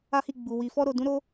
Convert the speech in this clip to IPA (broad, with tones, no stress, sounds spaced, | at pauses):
a˦ h i˦˨ ɡ͡b u˨ w i˨ f ɔ˧ ɾ o˨ d ũ˨˦ ɾ o˧